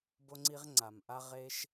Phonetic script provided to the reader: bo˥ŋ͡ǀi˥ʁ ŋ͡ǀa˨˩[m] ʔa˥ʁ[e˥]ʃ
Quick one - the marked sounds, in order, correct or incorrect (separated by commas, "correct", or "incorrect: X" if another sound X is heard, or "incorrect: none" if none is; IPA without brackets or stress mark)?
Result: correct, correct